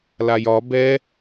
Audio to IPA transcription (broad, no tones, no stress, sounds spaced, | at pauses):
l a j ɒ b ɛ